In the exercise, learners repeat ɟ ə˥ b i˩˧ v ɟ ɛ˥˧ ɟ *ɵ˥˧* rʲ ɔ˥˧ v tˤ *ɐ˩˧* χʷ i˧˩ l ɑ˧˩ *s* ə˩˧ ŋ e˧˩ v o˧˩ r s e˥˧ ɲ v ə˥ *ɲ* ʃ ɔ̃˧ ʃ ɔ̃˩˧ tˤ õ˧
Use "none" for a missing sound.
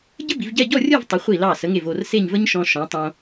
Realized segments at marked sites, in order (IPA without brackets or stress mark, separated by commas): ɔ˥˧, ə˩˧, s, ɲ